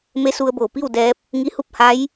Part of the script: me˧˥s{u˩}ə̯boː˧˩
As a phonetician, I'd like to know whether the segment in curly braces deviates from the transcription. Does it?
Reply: yes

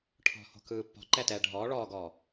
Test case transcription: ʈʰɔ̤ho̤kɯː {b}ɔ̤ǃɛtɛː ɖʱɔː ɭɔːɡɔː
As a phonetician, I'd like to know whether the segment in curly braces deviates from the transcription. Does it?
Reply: yes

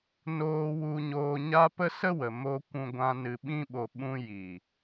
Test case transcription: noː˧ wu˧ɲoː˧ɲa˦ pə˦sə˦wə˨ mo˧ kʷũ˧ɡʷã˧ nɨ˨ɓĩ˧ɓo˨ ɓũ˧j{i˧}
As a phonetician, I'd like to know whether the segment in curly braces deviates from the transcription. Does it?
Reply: yes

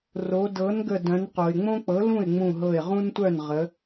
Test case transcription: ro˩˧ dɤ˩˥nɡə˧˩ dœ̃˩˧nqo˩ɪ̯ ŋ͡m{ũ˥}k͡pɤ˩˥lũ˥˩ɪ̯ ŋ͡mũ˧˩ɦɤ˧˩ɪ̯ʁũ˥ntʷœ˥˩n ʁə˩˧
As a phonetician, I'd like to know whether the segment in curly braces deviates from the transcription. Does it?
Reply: yes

